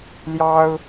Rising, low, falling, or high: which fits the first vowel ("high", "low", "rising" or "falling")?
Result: high